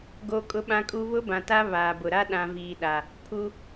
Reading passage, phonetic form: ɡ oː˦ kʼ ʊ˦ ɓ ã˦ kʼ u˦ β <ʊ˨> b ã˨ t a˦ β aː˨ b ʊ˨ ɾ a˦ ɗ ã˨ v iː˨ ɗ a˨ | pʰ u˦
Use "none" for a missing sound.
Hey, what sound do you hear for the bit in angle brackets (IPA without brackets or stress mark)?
ʊ˦